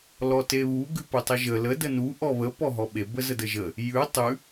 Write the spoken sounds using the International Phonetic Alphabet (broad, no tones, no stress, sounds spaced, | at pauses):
l ɔ t e β u ɡ ʉ p u tˤ ə ʒ ə l ə d ə n u ʔ ɔ β ə p ɔ ɦ ɔ ɓ e b ə z ə d ə ʒ ə | j ʉ tˤ ʉ